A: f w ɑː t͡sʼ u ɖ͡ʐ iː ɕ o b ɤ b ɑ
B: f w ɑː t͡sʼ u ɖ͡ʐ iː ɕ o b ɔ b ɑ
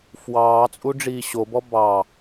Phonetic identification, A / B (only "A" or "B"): B